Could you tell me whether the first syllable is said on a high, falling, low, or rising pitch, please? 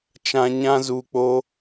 high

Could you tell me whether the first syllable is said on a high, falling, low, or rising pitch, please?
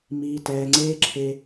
high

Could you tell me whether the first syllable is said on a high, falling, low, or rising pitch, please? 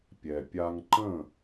low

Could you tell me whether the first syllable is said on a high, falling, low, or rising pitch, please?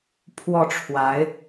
falling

